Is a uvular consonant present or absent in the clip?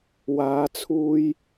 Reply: absent